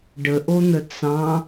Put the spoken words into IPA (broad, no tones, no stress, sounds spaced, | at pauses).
ɖ ə ʔ o n̪ ə t͡s ɑ̃